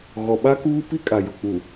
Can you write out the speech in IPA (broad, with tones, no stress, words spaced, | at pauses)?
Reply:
ɣɔ˨ɓa˦kuː˦ pi˦kʼa˨jʊ˨k͡pu˨